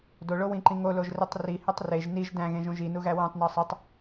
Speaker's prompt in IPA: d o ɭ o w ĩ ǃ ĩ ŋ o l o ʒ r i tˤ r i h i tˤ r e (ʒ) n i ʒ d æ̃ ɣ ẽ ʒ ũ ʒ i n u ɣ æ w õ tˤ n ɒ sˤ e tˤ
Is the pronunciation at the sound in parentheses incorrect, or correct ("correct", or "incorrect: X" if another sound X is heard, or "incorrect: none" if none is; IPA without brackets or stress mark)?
correct